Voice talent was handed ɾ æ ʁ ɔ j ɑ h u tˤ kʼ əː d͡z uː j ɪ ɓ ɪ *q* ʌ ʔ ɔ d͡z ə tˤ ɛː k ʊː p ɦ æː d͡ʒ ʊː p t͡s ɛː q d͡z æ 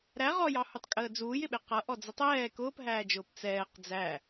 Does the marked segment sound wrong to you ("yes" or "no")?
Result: no